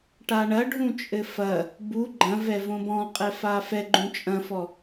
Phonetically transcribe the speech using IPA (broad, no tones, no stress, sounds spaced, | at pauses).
ʈ a ɳ ɐ ɖʱ ũ t͡ʃʼ ɘ f ɐ | b u ɡ͡ǃ ɐ̃ v ɛ v õ b ɔ̃ qʼ ɛ f a f ɛ ɡ͡ǃ ũ t͡ʃʼ ɐ̃ f ɔ